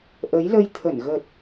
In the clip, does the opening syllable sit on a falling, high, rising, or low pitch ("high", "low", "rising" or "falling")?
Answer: rising